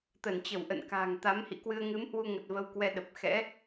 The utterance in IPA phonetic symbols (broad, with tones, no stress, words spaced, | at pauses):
t̪ə˧˩nt͡ɕə˧˩w ʔə̰˧˨nka̤ː˨˩ŋ t̪a˨˦mhḭ˧˨kwɨ˧ə̯ ŋɨ˨˦mhwu˧ŋə˨˩t̚ və˧wkwɛ˧ ɗə˨˩p̚ xɛ̰˧˥